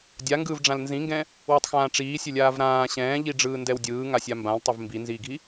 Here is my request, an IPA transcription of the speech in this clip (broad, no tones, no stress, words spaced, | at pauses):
dʲa ŋɡɯːvɖ͡ʐãlnzĩŋɡɛ̃ | wɛtˤxãːʈ͡ʂiː sʲɘlʲaːvɾãː ɕɛ̃ːʎiɖ͡ʐɯː ndɛwdʲɯː ŋasʲambãltˤɛv mbinziːɡʱi